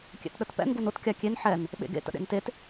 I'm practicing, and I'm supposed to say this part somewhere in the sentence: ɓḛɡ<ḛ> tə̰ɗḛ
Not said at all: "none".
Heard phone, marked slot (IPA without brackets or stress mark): ḛ